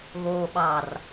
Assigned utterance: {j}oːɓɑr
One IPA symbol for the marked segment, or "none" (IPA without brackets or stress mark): ɣ